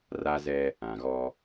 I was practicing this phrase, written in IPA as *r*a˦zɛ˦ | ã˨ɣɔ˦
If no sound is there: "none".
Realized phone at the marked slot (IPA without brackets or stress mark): r